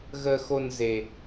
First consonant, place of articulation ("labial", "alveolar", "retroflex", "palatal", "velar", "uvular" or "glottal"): velar